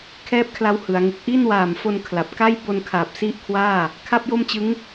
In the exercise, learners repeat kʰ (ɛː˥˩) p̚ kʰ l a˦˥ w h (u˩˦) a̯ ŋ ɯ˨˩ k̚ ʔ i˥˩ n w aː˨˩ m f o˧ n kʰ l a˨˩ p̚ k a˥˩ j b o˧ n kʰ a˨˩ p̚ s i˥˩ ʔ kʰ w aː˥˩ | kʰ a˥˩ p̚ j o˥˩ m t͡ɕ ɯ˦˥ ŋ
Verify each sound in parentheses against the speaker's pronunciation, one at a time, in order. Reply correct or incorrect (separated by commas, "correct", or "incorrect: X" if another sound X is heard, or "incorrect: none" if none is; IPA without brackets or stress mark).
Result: correct, incorrect: ɯ˩˦